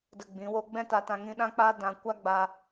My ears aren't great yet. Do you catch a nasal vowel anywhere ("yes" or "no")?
yes